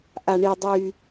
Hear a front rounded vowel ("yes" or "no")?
yes